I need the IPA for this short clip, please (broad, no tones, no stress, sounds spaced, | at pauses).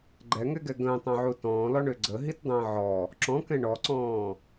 ɡ͡ǃ ɛ ŋ ɛ ɡ ɛ ɡ ə̃ː tˤ œ̃ ʕ u t ɔ̃ː l ɔ ɳ ø ɡ͡ǀ ə ɦ i t dˤ ə̃ː ʕ ɔ | ǁ ɔ̃ k ɛ̃ ɳ ɔ ǀ ɔ̃ː